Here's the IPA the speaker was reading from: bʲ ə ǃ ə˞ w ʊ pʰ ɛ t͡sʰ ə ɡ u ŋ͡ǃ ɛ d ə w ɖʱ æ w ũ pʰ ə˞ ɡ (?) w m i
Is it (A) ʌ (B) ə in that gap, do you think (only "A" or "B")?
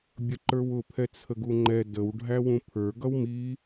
A